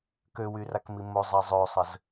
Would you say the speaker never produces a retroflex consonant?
yes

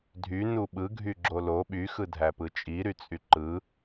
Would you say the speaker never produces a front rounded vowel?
no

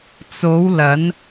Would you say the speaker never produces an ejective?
yes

